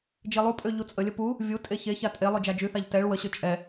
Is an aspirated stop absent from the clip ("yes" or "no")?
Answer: yes